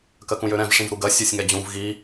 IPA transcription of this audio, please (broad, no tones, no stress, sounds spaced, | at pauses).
k ɜ k ũ j ø ɾ ɛ̃ v ʂ ĩ v ɾ u ɡ ɜ sʲ ø sʲ ŋ ɛ d͡ʑ ũ v ɣ i